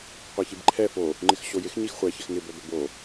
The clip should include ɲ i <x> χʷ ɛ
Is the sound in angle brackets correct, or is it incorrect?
correct